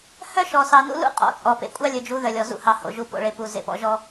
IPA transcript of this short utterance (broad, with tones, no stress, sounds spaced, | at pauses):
h œ˦ ʃ ɔ˨ s ɑ˨ n ṵ˦ l ṵ˦ qʼ ɔ̰˨ t͡sʼ ɔ˨ p ḛ˨ kʷʼ ɑ˦ lʲ ɵ˨ d͡ʒ u˨˦ ð œ˨ lʲ ɔ˨ z ṵ˦˨ h ɑ˨ h o̰˨ ʒ u˦˨ p o̰˨ ɭ e˨ p u˨ z ḛ˨ p ɔ̰˨ ʒ ɔ˦